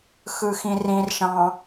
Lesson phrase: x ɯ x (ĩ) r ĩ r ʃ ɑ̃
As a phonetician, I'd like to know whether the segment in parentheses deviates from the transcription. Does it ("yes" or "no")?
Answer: no